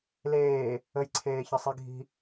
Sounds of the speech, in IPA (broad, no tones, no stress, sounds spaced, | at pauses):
l eː | ə j ǀʰ eː ç ə sˤ i ɡʱ i̤